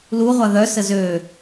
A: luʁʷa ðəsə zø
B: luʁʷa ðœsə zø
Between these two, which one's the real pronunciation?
B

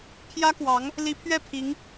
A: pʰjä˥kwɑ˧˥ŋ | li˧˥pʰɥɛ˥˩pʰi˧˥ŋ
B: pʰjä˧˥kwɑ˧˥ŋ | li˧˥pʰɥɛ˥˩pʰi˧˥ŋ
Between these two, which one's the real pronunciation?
A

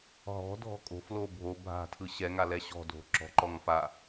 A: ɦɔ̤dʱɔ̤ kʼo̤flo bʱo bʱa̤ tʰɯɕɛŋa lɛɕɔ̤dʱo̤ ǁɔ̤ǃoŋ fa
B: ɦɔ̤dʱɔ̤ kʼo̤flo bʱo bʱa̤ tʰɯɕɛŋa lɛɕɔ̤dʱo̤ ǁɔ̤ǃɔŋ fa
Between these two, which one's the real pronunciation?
B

